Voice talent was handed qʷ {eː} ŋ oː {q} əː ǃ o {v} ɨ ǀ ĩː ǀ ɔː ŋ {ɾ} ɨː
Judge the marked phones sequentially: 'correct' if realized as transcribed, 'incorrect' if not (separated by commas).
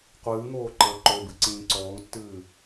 incorrect, incorrect, incorrect, incorrect